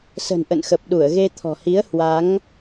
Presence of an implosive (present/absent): present